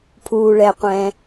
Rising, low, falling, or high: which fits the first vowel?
low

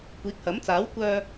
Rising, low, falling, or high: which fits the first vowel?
rising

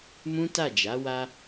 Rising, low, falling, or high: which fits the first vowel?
high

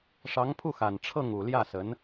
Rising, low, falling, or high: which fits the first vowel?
rising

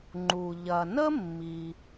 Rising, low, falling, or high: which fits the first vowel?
low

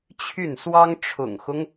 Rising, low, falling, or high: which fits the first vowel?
falling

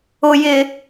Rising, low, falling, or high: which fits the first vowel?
low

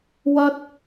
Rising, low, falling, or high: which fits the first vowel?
high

